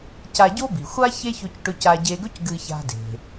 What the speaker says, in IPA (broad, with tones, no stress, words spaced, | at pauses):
ca˧ɟo˥bi˩xʷa˥ çe˥çɵ˧cʈɵ˧ ca˧ ɟe˧ɡɵ˥c ɡɨ˧ça̤˧de̤˩